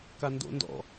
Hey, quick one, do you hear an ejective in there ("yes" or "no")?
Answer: no